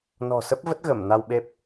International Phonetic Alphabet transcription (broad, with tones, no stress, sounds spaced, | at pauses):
n ɔ̤˨˩ s ə˦˥ p̚ v ə˦˥ t̚ ɣ ə˧˩ m n a˧ w ɓ e˦˥ p̚